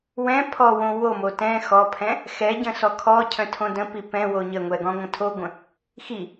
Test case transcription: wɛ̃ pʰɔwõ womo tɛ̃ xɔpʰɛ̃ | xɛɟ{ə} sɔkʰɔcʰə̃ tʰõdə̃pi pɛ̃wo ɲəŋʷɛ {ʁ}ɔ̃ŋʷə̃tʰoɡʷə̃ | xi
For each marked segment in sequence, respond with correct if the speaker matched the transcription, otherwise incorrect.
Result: incorrect, incorrect

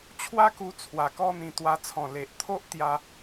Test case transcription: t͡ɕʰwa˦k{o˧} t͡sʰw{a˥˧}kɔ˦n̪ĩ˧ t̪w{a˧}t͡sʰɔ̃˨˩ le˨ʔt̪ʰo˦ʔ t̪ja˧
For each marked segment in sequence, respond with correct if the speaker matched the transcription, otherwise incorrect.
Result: incorrect, incorrect, correct

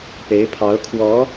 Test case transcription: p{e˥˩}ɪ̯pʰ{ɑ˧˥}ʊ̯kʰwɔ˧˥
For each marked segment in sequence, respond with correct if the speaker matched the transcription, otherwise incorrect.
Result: incorrect, correct

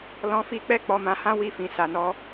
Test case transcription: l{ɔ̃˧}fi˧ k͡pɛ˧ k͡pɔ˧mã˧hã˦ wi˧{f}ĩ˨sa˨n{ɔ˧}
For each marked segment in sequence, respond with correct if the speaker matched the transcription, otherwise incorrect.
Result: correct, correct, correct

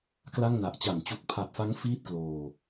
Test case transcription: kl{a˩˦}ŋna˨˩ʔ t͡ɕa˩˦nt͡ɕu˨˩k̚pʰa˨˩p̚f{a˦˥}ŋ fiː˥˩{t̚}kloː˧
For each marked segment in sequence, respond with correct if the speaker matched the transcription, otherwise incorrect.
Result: incorrect, correct, correct

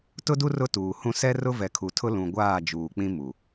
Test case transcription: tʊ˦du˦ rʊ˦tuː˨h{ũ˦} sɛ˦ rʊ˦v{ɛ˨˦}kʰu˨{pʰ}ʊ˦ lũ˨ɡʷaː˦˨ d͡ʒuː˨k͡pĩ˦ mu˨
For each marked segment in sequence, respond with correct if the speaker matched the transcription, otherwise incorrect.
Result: correct, incorrect, incorrect

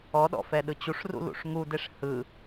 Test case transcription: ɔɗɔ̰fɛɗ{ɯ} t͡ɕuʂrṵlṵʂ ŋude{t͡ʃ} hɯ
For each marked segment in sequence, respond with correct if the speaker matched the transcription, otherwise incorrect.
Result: correct, incorrect

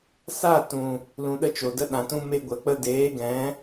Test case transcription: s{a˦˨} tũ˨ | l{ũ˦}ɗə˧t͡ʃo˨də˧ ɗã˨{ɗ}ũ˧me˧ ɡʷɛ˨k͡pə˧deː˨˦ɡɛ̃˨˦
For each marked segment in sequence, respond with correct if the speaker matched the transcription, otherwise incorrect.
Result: correct, incorrect, incorrect

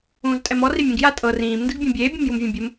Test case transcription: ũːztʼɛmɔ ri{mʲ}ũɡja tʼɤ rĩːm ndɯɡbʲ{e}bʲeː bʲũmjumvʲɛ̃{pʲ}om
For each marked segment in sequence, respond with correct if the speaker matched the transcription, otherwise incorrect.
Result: correct, incorrect, incorrect

